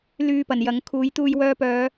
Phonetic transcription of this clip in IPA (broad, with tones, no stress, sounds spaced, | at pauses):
l yː˧ p ɐ˨˩ n j ɐ˨˥ ŋ kʰ uː˨˥ j t̪ uː˧ j w œː˧ p œː˨˧